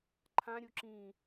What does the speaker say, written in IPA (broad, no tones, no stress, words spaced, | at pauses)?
ǃʰãɾʲu ǁĩ